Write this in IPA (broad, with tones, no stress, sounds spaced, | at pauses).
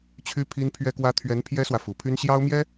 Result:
t͡ɕʰ y˥ pʰ i˥ n pʰ ɥ ɛ˥ k w ä˥ t̪ʰ ɥ ɛ˧˥ n pʰ j ɛ˥ s w ä˨ f u˨˩ pʰ y˥ n ɕ j ɑ˥ ʊ̯ m j ɛ˥